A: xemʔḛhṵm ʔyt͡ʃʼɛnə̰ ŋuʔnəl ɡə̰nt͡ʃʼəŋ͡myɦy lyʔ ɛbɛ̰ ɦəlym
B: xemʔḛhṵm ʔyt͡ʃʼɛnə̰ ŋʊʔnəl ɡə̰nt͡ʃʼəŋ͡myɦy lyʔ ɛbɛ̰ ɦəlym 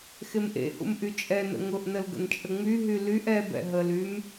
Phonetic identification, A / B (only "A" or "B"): B